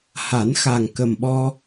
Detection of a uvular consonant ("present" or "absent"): absent